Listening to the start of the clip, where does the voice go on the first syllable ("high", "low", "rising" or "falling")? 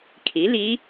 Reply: rising